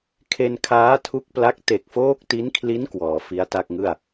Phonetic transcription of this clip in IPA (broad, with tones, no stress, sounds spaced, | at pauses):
kʰ e˧ n kʰ aː˦˥ tʰ u˦˥ k̚ p l a˦˥ k̚ t e˨˩ k̚ f oː˦˥ k̚ t i˦˥ n kʰ l i˦˥ n k w ɔː˩˦ f i˦˥ a̯ t a˥˩ k̚ ŋ ɯ˥˩ a̯